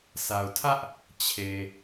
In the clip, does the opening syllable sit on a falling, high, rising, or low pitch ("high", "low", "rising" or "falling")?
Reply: low